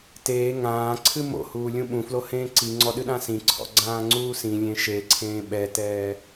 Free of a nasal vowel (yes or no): no